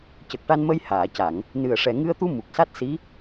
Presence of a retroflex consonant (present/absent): present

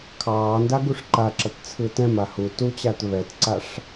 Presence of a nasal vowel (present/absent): present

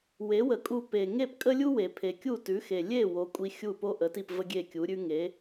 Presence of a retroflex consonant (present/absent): absent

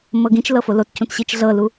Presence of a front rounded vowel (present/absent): absent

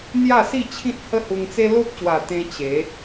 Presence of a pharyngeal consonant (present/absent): absent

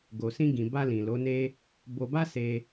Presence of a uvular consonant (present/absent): absent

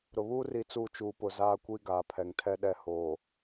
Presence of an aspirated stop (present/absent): present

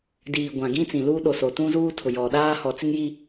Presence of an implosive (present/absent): present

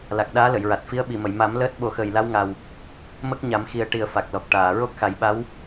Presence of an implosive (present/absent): present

